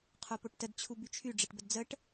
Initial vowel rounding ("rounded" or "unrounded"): rounded